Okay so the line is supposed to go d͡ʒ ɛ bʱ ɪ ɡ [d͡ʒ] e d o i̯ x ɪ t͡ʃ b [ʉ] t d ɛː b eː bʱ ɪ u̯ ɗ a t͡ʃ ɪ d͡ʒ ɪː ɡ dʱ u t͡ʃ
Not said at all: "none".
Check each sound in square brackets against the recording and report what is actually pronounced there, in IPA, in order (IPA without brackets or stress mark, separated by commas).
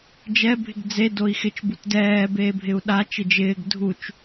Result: d͡z, u